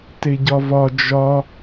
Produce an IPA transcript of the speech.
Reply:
teɟɒvɒ d͡ʒɒ

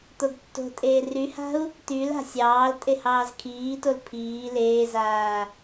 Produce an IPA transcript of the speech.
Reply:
t̪oɡtːo̤tʼeː ryha̤u̯ | t̪yl a̤sʲɑːltʼe hɑːzkʰiːtol pʰiː leːzaː

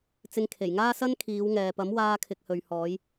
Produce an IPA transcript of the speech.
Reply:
t͡sɪ˧ŋkʰe˨˩jŋaː˥ sɐ˥n kʰiː˨˧wŋɛː˨pɐ˨˥m waː˧kʰɪ˨k̚hɵ˨ɥhɔː˨˧j

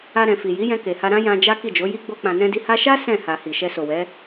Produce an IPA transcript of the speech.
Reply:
a˧ɾɛ̃˨ fi˨ ji˨˦jɛ̃˧ke˨ha˧ ɾã˦ jã˧ d͡ʒa˦ ki˦˨d͡ʒo˨˦ ji˦ ɡ͡bo˧k͡pã˨nɛ̃˧di˧ ha˧ʃa˦ sɛ̃˦˨ ha˨ hi˨ʃɛ˧ so˨wɛ˨˦

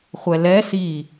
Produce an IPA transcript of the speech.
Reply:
χʷɛlɛ si

